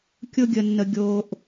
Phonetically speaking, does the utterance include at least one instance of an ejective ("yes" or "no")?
no